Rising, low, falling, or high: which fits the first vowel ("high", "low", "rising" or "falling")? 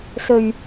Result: low